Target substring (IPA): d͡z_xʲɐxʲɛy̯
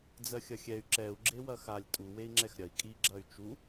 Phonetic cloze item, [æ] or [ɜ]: ɜ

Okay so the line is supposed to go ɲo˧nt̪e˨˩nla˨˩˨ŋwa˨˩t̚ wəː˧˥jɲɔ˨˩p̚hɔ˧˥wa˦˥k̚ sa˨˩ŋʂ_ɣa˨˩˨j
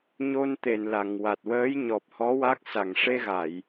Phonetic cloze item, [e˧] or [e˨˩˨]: e˧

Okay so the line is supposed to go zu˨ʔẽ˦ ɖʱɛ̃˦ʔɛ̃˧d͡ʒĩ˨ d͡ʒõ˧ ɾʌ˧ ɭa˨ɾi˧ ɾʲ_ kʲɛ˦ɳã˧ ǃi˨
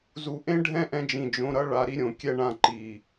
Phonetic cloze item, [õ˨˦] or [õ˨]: õ˨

